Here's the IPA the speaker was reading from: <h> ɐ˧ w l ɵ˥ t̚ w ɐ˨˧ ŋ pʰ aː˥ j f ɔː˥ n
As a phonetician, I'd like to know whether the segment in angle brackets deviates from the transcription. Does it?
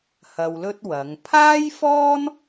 no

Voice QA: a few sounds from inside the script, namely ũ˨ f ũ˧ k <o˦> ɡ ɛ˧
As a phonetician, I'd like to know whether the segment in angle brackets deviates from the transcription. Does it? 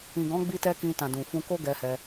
no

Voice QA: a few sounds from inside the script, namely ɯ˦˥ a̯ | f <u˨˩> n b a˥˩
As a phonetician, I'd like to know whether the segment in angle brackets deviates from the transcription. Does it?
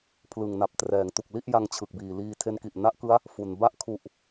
no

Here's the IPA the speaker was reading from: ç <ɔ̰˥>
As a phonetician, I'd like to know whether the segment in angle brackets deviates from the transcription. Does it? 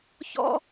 no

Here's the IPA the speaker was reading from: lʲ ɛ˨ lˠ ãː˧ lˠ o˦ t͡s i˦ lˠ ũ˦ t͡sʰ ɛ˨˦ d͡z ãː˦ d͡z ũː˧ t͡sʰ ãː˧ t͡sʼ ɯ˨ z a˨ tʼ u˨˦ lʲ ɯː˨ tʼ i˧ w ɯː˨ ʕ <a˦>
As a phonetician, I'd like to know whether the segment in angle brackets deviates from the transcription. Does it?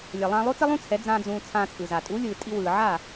yes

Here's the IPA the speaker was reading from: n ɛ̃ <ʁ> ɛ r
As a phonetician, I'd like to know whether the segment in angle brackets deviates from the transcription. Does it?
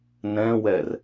yes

